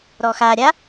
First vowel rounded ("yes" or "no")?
yes